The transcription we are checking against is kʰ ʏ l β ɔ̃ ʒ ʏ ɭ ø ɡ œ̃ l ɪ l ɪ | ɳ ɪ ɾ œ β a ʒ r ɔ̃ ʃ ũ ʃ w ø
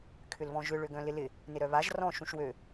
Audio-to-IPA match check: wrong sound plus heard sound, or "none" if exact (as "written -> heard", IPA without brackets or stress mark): ɳ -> n